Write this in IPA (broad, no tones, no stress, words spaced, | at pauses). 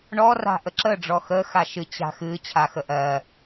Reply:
ɳɔra̤ ʔəǁəɖ͡ʐɔ xə xaʃɨ t͡ɕa̤xɨ t͡ɕʰaxəʔɜ